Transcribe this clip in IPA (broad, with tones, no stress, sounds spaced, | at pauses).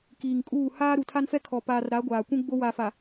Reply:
k iː˨ ŋ kʼ uː˦˨ h aː˦ ɾ u˨ tʰ a˦ n f ɛ˦ kʰ ɔ˨ p aː˨ r ɾ a˨˦ ɡʷ aː˨ kʷ ũ˦ ɡ͡b o˦ w a˨ f a˨